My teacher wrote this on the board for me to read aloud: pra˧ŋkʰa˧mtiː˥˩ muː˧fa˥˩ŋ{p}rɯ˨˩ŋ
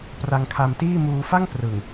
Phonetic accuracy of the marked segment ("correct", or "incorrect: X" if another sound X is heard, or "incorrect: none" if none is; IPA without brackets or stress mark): correct